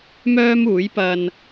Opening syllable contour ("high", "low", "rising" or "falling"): high